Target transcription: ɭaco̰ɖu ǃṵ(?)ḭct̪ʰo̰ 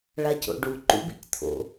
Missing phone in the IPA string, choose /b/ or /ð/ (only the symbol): b